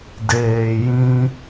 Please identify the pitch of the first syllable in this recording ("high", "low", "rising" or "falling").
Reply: low